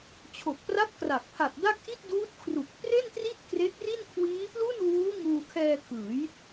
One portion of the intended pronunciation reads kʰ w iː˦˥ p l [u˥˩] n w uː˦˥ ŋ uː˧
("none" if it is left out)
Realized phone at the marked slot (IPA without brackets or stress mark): u˥˩